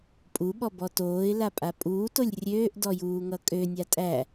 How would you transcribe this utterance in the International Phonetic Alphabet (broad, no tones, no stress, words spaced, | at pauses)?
pʼuɓɔbɔ toːɪ̯lapʼa pʼuːtolʲ rʲøːʔdɔjuːŋʌ kʼønʲa tʼæ